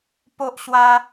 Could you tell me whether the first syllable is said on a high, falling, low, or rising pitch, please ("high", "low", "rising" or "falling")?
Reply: high